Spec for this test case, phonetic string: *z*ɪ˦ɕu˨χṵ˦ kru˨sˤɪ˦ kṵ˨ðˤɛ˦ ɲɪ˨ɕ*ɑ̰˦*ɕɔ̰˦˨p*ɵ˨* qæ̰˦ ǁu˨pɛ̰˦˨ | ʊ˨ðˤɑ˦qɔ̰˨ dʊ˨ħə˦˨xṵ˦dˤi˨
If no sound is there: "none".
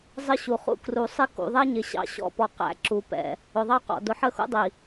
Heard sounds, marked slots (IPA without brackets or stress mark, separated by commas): zˤ, ɑ̰˦, ɔ˨